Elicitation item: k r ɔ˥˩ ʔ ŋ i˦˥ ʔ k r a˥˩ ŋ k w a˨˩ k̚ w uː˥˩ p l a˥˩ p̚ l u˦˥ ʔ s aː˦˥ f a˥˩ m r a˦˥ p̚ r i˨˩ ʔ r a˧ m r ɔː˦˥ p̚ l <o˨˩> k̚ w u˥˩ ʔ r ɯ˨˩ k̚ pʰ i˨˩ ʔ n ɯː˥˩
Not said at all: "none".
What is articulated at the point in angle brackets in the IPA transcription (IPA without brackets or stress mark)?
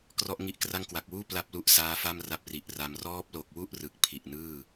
o˨˩